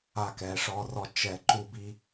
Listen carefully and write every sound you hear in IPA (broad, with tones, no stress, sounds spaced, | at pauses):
a˧ k ɛ˨˩˦ ʂ ɔ˧ r ɔ˧ t͡ʃ ɛ˨˩˦ ǃ u˧ b i˧